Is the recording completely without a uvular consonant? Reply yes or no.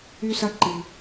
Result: yes